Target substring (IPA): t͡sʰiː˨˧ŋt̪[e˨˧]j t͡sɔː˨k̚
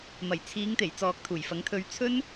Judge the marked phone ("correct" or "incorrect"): incorrect